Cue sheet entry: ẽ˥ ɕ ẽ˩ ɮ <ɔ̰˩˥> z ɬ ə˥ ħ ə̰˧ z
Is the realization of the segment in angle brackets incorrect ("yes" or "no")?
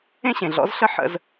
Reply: no